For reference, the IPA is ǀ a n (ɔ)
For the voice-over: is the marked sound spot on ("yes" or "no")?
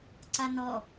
yes